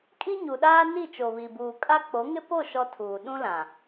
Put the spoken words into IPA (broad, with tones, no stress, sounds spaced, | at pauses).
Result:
kʼ i˦ ɲ u˨ ɗ aː˦ n i˦˨ t͡ʃ o˨ β i˨ b uː˨ kʼ a˦ k͡p o˨˦ ŋ ɪ˦ p o˦˨ ʃ ɔ˦ tʰ uː˨ ɗ ũ˦ l ã˨